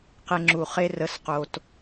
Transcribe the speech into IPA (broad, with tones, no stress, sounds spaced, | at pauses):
q e˧ ŋ͡ǁ u˨ χ e˦ r ə˨˦ s q o˨ t